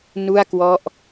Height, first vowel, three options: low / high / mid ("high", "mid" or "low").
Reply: high